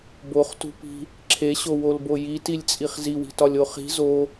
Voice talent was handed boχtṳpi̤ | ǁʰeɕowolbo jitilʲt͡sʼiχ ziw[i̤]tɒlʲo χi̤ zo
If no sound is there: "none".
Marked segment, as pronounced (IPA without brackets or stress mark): i̤